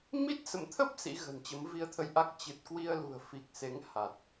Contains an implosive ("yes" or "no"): no